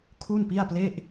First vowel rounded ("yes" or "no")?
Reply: yes